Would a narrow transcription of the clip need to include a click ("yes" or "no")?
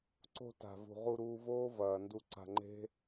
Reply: yes